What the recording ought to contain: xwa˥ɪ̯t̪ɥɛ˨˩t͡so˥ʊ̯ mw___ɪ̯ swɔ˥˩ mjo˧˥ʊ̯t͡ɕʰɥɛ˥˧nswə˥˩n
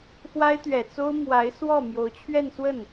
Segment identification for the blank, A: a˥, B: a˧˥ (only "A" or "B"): B